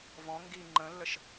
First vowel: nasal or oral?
nasal